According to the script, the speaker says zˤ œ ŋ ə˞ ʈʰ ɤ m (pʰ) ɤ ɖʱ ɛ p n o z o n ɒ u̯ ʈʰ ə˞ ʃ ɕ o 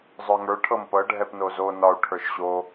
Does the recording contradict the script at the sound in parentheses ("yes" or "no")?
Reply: yes